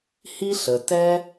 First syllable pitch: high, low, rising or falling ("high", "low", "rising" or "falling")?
high